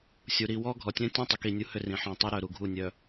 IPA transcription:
sʲ u˨ ɾ i˨ w ɔ˦ ɡʱ ɔ˨ tʲ œ̃˦ tʲ ɔ̃˦ tˤ ʏ˨ k i˦˨ nʲ u˦ h ʏ˦ r ĩ˨ ħ ɔ̃˦˨ tˤ u˦ ɾ œ˨ ɾ u˨ ɡʱ u˦˨ nʲ œ˨

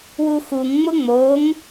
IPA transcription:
w u x u ŋ ŋ͡m ʊ ŋ͡m o ŋ

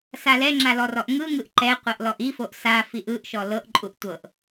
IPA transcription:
s a l ɛ ŋ͡ǁ a l ɔ r ɔ ʔ ŋ ɯ ŋ ɯ ʔ ǃ ɛ qʷ ɤ ʔ l ɔ ʔ i f o ʔ s a f i ʔ ɯ ʔ ʃ ɔ l ɤ ʔ ǃʼ u ʔ tʷ ɤ ʔ

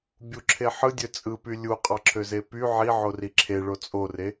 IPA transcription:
bʲ u ǁʰ e ħ ɯ dʲ ø t͡sʼ ɯ p y lʲ u qʼ ɑ ǁʰ ø z e p y ʕ i ʕ o r i ǁʰ e ɭ o t͡sʼ o r e

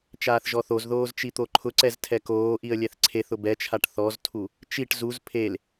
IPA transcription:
t͡ʃ aː θ ʒ ɔ θ o z ð oː z t͡ʃ i t̪ o ǃʰ ʊ ǀ ɛ z tʰ ɛ k oː ʔ i ə̯ lʲ ɛ θ ǀʰ e θ ʊ b ɛ t͡ʃʰ a ʈ θ ɔ z tʰ u | t͡ʃ i ʈ z u z pʰ e l

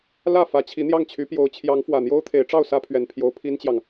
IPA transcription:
l ä˥˩ f ä˧˥ t͡ɕʰ i˧˥ n̪ j ɑ˥˩ ŋ t͡ɕʰ y˧˥ p j o˧˥ ʊ̯ t͡ɕʰ j ɑ˧˥ ŋ f w ä˨˩ n̪ j o˥ ʊ̯ t̪ʰ e˧˥ ɪ̯ ʈ͡ʂ ɑ˥˩ ʊ̯ s ä˥ pʰ ɥ ɛ˨˩ n pʰ j o˧˥ ʊ̯ pʰ i˥ n t͡ɕ j ɑ˨ ŋ

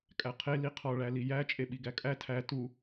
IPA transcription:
kʼ æ qʰ e l i qʰ ɒ ɭ æ l i j æ t͡ʃʼ e ɓ i ɡ æ kʼ æ tʰ æ t u

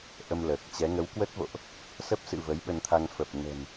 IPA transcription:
ʔ ə˧ m l əː˨˩ k̚ t͡ɕ ɛ˨˦ ŋ ə˨˦ w k w ə˦˥ t̚ v o̰˧˨ ʔ | s ə˦˥ p̚ s ɨ̰˧˨ v ə˨˦ j ɓ ə˧ n t̪ʰ a˧ ŋ f ə˨˩ p̚ n ə̤˨˩ n

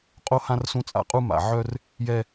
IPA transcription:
qʼ o˦ h ã˦ r s ũ˦ t͡sʼ a̰˦ qʼ u˦ m a̰˨ ʕ œ˦ r | j ɛ˦

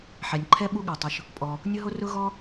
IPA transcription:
ħ ɛ˩ nʲ ǃʰ ɛ˦ ɓ u˦ ɠ a˩ tˤ ʊ˩ ʃ | pʼ ɔ˩ | nʲ ʊ˦ ɦ o˦ r ʊ˦ ɣ ɔ˦

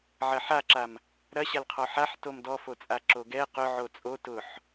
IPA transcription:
ʕ ɐ ħ a ǁ a m | ɾ ɐ ɕ a l qʰ ɔ ħ a ħ t o m d ɔ f o t͡sʼ a ǁ o ɡ ɛ q ʊ ʕ o t͡sʼ o t ʊ ħ

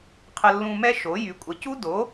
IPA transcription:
qʰ ə˧ lː ũ˧ m ɛ˦˥ ʃ o˩˥ j y˩˥ kʷʼ ə˩˥ c u˦˥ d o˩˥

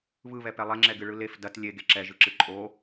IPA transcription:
β ɯ β ɛ p ɛ lˠ ɛ ŋ͡ǁ ɛ ɡ ɨ ɭ ɯ l e f d ɐ t lʲ e ɡ e ǁ ɛ ʒ ɯ ǁ ɨ ǃʼ o

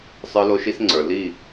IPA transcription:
sˤ ə˞˧ l o˧ ʃ i˧ s ŋ͡ǀ ə˞˨ l i˦˨

